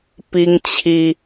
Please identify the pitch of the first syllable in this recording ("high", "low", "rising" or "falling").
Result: high